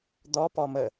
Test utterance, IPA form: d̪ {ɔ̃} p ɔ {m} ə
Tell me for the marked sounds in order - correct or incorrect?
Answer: incorrect, correct

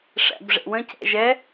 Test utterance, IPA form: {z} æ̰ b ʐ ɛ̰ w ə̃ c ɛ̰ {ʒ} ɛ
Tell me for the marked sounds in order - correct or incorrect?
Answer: incorrect, correct

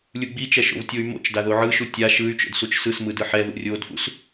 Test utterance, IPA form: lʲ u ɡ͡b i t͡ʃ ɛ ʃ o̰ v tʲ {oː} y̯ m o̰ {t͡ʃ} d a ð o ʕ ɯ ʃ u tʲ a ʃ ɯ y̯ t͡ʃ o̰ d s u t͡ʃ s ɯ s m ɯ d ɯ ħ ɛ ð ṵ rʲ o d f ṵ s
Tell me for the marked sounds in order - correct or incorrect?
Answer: incorrect, correct

